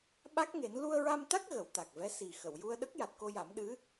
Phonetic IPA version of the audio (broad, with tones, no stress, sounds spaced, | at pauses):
ɓ a˦˥ k̚ ŋ e˨˩˦ n l u˧ ə̯ ɹ a˧ m t̪ a˦˥ k̚ ɣ ə˨˩˦ w t̪ a˨˩ k̚ v ɛ˧˥ s i˨˩ x ə˨˩˨ w j u˧ ə̯ ɗ ə˦˥ k̚ j a˨˩ t̚ k o˧ j a˨˩˦ m ɗ ɨ˧˥